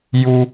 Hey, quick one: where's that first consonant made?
palate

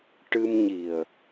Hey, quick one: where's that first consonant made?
retroflex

